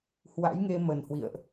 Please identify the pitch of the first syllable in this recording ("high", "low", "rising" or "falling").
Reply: rising